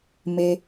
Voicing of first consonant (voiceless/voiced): voiced